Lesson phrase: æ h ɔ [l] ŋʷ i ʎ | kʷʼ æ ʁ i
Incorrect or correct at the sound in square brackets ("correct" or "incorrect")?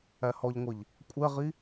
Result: incorrect